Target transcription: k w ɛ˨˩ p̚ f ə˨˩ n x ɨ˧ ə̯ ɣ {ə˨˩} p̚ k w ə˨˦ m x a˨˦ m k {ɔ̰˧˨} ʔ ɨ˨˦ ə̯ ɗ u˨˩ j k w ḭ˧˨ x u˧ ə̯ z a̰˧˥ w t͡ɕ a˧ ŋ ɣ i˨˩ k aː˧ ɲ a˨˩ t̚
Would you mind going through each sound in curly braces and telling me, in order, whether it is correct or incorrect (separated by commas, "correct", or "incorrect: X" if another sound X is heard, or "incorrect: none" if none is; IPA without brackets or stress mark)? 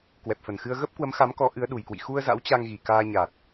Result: incorrect: ə˦˥, incorrect: ɔ˨˦